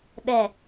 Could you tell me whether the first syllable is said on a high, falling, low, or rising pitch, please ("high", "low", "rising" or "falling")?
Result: low